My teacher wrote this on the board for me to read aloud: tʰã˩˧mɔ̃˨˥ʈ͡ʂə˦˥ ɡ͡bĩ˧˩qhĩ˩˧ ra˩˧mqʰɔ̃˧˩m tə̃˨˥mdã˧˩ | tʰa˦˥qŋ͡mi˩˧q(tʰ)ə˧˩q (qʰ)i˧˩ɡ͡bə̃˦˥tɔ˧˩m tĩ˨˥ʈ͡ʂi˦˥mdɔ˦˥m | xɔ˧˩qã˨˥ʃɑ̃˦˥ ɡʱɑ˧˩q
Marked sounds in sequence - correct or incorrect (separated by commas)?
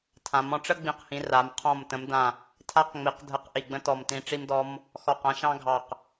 incorrect, incorrect